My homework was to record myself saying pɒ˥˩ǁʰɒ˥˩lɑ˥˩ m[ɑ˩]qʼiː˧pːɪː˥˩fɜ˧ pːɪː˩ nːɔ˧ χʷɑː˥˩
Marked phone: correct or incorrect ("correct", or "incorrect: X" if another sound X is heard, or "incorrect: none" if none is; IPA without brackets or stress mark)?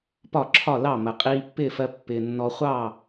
incorrect: ə˩